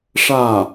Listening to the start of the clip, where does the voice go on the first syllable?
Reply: falling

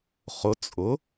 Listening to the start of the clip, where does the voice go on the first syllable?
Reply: rising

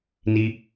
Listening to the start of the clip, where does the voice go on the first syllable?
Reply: high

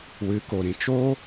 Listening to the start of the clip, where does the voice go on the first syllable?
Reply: rising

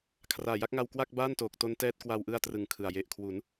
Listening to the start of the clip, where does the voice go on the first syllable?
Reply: low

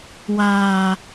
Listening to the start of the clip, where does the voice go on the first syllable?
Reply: low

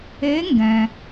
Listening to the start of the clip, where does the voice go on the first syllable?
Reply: rising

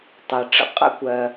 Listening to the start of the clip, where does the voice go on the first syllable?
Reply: low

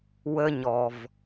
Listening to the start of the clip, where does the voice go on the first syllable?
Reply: high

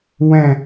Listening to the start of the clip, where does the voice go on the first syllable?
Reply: falling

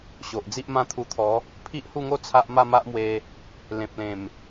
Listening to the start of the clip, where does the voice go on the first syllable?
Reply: low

